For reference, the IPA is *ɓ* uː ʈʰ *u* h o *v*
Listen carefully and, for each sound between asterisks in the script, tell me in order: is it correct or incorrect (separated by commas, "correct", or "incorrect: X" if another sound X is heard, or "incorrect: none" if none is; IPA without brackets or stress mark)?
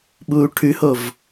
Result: correct, incorrect: ʉ, correct